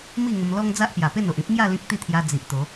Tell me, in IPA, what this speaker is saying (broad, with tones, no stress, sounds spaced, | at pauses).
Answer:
m i˥˧ ŋ ə˧ m l ɔ˦ ŋ d͡z a˦ ʔ p j a˨˩ p e˥˧ n o˨ ʔ ĩ˦ p̚ ŋ j a˥˧ l ĩ˦ k̚ t̪ i˥˧ t̪ʰ j a˧ d͡z i˨ ʔ t̪ o˨˦